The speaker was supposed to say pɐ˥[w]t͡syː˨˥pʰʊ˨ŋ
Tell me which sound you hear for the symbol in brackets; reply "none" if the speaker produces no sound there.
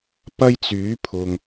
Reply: j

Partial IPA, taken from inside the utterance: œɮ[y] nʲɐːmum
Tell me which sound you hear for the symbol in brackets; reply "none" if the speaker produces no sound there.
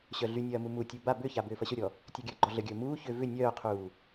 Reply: y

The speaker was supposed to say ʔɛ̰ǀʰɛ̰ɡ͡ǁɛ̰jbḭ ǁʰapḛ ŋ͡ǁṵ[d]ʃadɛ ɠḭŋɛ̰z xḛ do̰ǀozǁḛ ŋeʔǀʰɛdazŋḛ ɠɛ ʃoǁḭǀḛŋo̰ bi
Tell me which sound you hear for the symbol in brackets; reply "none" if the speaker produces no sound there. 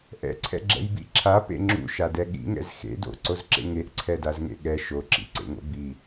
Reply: none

